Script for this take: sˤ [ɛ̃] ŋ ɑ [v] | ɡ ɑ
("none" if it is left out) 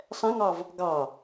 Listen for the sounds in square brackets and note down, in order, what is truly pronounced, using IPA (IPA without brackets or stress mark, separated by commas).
ɛ̃, v